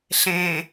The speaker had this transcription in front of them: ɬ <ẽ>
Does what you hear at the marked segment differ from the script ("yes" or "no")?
no